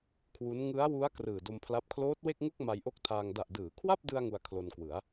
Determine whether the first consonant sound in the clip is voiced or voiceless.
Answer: voiceless